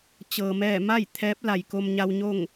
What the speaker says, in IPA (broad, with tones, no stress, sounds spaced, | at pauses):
t͡ɕ ɤː˩ m ɛː˧˩ m a˥˨ j t̪ʰ ɛː˧˥ p̚ l a˩ j k o˧ m ɲ a˧ w ɲ o˥˨ ŋ